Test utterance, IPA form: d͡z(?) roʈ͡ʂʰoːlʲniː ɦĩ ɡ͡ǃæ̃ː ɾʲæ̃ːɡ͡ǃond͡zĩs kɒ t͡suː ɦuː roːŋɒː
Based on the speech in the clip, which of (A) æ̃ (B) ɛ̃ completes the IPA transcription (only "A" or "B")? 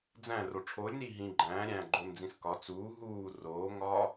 A